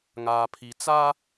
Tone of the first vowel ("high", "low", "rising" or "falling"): low